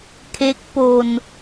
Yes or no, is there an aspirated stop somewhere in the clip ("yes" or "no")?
yes